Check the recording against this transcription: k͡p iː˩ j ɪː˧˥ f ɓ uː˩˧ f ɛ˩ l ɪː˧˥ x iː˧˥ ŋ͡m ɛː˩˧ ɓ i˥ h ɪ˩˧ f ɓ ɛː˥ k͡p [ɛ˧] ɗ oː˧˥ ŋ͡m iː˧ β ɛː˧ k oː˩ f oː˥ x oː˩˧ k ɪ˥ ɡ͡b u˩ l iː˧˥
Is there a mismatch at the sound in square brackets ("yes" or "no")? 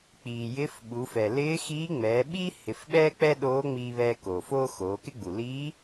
yes